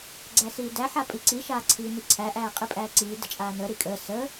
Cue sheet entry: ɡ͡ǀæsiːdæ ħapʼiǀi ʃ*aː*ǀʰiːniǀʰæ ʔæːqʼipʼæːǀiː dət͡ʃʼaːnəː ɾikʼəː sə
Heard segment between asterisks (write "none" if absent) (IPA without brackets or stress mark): aː